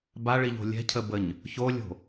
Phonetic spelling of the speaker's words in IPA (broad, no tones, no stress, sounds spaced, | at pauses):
b a ɭ i ʎ o̤ lʲ ɛ̤ cʰ ə b ə ɲ | ç o lʲ o̤